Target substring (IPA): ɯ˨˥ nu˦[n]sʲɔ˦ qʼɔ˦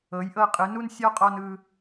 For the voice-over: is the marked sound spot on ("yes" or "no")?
yes